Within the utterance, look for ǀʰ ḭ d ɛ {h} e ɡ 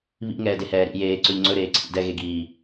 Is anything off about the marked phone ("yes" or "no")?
yes